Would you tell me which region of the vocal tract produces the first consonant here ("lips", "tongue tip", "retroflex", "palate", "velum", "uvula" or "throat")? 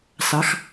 tongue tip